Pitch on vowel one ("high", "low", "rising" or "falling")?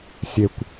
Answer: low